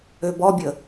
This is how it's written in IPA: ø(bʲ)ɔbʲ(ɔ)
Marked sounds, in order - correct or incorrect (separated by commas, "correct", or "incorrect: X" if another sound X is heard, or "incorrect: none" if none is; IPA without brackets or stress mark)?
incorrect: b, incorrect: ə